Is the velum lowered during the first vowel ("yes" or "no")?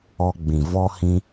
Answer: no